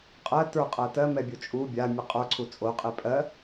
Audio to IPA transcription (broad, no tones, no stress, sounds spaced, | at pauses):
qʼ ɜ t ə˞ qʼ ɜ t ɜ m ɛ bʲ o t͡ʃʼ u bʲ a mʲ ɨ qʼ ə˞ ǀʰ u t͡sʼ o qʼ e pʼ ɜ